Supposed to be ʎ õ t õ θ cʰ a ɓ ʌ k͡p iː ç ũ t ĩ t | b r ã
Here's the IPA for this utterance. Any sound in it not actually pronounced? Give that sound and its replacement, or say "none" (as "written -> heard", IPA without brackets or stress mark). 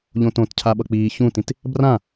θ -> t